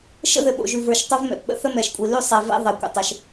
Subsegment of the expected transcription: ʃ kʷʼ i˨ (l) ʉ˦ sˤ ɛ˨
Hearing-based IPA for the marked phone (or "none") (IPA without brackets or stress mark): l